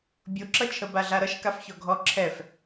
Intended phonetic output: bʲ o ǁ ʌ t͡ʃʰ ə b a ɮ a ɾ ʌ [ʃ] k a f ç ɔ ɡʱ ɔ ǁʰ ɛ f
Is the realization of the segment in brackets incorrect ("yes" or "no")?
no